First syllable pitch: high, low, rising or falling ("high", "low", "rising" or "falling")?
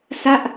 falling